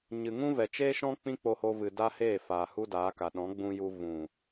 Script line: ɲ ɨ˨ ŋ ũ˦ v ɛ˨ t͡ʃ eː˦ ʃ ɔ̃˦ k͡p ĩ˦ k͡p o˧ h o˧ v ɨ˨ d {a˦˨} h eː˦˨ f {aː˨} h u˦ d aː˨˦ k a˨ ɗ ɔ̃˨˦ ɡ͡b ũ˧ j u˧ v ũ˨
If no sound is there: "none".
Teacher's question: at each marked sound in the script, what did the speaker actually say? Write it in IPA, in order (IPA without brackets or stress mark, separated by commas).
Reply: a˦, aː˨